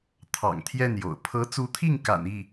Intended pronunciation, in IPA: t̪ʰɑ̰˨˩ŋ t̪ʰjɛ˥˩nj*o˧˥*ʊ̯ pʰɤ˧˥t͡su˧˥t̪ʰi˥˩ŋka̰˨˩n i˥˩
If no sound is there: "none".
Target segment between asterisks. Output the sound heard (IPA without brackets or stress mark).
o̰˨˩